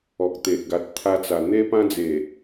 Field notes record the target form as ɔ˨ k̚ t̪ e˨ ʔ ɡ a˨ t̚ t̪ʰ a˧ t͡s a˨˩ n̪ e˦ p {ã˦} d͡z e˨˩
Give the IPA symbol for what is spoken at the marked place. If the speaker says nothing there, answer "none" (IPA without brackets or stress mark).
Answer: ã˦